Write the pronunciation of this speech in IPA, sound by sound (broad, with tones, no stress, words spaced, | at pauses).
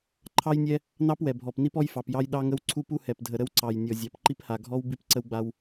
ǃʰɑ˦jnʲɛ˦ | nɑ˦pwɛ˨bʱɔ˨p ni˦pɔ˦jfɑ˨p jɑ˦jɗɑ˦ŋə˦w ǀʰu˦pu˦hɛ˨pdʱə˨ ɾə˦wǀɑ˨j nʲɔ˨zʲɑ˨pǃi˦pha˨ ɡʱɔ˦w bi˦pǀə˦wɡ͡ba˦w